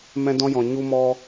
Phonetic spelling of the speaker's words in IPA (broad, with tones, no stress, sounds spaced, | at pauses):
m ɛ̃˧ d ɔ̃˧ j ɔ̃˨ ɲ u˧ m ɔ˧